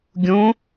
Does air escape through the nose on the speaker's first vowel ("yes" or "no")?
yes